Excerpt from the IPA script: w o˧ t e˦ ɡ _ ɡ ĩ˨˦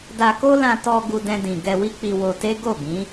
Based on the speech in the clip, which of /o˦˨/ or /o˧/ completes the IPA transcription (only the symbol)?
o˦˨